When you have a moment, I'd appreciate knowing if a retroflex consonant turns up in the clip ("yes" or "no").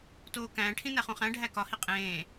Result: yes